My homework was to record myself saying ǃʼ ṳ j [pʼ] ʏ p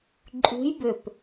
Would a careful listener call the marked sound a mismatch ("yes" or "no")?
yes